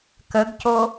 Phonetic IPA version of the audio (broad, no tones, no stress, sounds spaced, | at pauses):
k ə ɡ c o